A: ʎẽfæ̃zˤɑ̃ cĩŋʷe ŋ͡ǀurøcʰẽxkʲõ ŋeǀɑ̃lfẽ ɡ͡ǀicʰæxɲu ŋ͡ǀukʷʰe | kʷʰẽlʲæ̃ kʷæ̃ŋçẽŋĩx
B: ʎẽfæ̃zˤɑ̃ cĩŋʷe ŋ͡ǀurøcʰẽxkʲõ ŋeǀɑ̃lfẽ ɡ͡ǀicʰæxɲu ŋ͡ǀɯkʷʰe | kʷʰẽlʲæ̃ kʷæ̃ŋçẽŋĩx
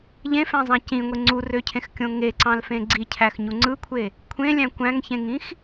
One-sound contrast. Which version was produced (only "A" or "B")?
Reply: B